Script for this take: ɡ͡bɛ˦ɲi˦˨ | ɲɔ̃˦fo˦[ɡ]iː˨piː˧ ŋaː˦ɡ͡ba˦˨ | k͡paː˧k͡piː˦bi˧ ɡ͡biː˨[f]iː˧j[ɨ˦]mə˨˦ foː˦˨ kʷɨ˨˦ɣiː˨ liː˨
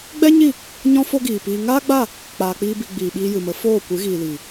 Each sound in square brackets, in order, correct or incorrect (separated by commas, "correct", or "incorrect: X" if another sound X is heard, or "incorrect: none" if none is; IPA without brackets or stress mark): correct, incorrect: ɓ, incorrect: ɨ˨